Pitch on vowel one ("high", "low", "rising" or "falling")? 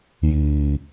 low